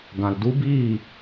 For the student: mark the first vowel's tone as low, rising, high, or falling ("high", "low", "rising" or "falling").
low